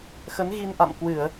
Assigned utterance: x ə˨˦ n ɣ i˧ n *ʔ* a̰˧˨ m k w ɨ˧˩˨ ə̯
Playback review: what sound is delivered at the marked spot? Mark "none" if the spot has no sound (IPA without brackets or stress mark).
ʔ